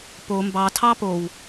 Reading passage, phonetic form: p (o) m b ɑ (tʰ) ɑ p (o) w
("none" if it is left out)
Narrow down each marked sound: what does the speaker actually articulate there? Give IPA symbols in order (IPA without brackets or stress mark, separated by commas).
o, tʰ, o